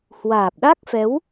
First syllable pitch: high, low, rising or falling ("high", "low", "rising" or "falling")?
low